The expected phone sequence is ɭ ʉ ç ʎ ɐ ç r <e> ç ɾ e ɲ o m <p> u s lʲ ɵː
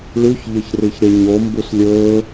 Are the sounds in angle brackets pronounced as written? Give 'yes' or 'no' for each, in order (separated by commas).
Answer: no, no